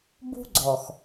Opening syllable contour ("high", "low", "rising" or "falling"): high